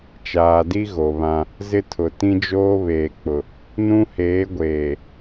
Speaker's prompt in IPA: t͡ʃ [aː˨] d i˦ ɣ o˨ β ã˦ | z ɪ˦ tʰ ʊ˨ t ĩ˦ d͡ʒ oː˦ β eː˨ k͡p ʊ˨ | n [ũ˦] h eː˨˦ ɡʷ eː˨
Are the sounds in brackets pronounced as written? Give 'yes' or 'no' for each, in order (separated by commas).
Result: yes, yes